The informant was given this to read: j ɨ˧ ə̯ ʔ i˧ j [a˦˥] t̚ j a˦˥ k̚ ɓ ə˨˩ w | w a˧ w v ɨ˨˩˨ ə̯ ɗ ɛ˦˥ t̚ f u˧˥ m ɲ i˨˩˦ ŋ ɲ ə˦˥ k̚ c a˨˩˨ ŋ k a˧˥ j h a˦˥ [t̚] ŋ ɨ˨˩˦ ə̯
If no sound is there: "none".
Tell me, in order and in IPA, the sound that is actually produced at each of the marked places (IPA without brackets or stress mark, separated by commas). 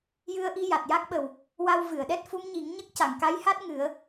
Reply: a˨˩, t̚